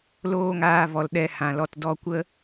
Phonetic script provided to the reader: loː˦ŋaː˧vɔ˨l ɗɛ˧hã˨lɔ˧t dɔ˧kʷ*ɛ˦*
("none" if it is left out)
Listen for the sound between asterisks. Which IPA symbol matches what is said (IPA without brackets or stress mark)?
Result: ə˦